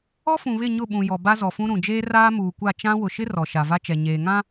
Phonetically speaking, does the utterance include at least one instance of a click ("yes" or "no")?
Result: no